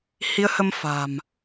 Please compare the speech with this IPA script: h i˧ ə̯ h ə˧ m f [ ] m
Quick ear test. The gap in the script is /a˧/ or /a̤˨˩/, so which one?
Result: a̤˨˩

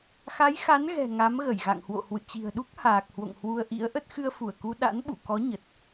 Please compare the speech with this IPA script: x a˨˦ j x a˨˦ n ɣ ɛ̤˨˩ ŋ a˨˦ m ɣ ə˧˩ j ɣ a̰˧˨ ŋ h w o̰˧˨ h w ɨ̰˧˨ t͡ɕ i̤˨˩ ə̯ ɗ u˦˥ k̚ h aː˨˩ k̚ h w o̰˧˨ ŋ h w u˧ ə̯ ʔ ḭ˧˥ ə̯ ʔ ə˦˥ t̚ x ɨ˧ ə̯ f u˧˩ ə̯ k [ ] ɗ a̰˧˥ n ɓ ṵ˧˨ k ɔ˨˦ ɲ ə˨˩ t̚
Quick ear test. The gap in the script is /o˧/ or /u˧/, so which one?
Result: u˧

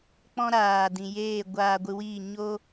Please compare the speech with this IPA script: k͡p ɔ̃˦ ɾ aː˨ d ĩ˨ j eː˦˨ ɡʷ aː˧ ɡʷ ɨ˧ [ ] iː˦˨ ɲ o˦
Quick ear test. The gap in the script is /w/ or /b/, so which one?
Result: w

